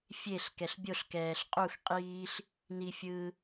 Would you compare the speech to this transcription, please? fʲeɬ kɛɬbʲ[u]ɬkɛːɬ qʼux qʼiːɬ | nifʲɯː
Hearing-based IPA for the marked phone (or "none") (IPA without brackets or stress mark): o